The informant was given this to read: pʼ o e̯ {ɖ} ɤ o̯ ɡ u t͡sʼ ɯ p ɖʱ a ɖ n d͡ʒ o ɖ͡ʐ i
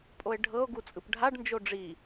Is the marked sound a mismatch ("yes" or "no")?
yes